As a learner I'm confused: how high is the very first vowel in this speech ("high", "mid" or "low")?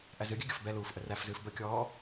low